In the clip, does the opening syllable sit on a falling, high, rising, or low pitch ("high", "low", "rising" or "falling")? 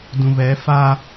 low